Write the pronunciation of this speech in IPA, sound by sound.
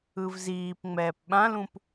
ɯ v z iː p ŋ͡m ɛː p ɓ ã l ũ p

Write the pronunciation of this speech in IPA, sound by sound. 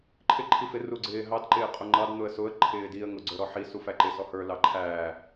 ǃʰ ɪ ǃʰ i f ɪ r u ɡ͡ǀ ɪː ɦ ɑ d ǃ ɪː qʼ ʊ ŋ͡ǃ ɑ d n̪ ʊ ə̯ s ʊ ə̯ ǃʰ ɪː d i ə̯ ŋ ʊ ɡ͡ǀ ə˞ ɾ ɔ ħ i s u f æ ǃ ɪ s ɔ h ə˞ l ɑ ǃʰ æː

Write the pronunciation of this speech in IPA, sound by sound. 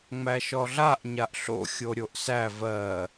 ŋ͡m æ ʃ ɔ ɮ a ʔ ɲ a ʔ ɬ o̰ xʲ o ɾʲ o ʔ s æ v ɜ

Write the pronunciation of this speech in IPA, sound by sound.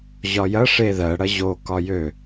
ʑ ɒ j ɐ ʂ e ð ɜ ɽ ɐ ʑ o k ɒ j ø

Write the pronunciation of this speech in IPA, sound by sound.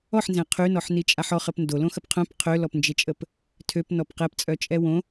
ɔ ħ n z ɛ̃ qʰ y n ɔ ħ n i t͡ʃʼ a ħ ɔ χ ə p n d o l õ x ə p qʰ œ̃ p qʰ ø l ɔ p n d͡ʒ e t͡ʃʼ ə p | tʰ ø p n ɔ p q ɛ p t͡sʼ œ t͡ʃʼ ɛ w õ

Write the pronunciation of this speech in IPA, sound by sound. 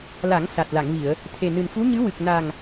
l a˨˩˦ ŋ s a˨˩ t̚ l a˨˩˨ ŋ v i˨˩˨ ə̯ | t̪ʰ e˨˩ n ɨ˨˩ n f u˧˥ ɲ ɨ˧˥ w ɨ˨˩ k̚ n a˨˩ ŋ

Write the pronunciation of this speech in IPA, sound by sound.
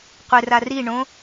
qʷ ɪ r a r i ɳ õ

